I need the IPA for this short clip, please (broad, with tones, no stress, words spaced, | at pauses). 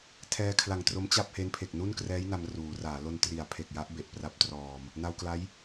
tʰɛː˧kʰla˨˩ŋtro˦˥m t͡ɕa˥˩p̚he˦˥npʰe˨˩k̚ nu˥˩nkrɛː˦˥j na˧mruː˩˦raː˩˦ lo˧ntri˩˦a̯pʰe˨˩k̚ja˦˥ʔ be˨˩ʔpra˦˥p̚trɔː˧m | na˧wkla˦˥j